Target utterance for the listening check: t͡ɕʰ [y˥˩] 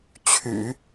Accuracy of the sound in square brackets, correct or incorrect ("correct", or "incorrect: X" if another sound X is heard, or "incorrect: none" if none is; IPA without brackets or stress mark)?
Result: incorrect: y̰˨˩˦